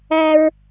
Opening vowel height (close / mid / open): open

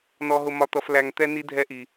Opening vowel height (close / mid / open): mid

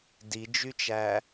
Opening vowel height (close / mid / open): close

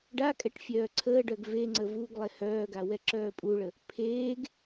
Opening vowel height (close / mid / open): open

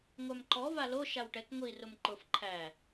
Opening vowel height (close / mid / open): open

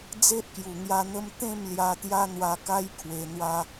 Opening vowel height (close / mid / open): mid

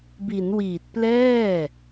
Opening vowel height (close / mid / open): close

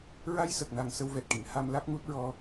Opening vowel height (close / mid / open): open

